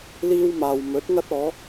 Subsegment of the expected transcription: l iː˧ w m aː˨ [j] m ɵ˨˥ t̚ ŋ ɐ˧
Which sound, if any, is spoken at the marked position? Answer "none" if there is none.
w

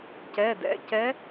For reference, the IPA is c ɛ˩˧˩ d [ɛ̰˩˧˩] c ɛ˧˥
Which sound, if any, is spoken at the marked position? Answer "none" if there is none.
ɛ̰˩˧˩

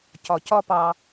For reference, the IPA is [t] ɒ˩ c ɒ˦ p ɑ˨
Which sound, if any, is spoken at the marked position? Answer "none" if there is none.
c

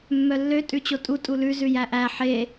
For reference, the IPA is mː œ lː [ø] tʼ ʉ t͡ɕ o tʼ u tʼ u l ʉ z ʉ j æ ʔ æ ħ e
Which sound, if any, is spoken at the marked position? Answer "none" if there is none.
ø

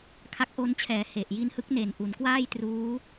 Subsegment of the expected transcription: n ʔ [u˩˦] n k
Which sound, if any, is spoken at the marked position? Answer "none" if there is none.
u˩˦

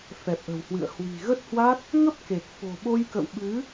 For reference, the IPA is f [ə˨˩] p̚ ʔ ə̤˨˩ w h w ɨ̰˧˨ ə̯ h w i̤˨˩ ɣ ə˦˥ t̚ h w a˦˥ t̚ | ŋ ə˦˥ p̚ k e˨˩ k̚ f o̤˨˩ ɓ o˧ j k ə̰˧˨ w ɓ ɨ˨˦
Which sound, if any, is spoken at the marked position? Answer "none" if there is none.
ɛ˨˩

